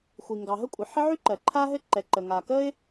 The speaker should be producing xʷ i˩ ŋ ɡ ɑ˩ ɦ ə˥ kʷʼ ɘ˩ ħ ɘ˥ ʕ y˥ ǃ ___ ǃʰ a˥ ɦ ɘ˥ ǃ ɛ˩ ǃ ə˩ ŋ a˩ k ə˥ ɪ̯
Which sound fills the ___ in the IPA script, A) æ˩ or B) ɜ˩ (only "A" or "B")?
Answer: B